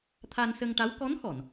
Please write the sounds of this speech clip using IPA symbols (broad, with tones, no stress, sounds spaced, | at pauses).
t̪ʰ a˧ n s ə˧ ŋ ʈ a˧˥ w k ɔ˧˥ n x ɔ˨˩˨ n